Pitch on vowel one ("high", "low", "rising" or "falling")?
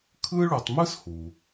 high